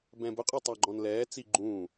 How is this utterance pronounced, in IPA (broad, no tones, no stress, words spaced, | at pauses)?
bɛ̃bʊqʼə˞ tˤɑɡ͡ǃɔ̃nlɛːt͡si ɡ͡ǃũː